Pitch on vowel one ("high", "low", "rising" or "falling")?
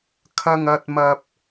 low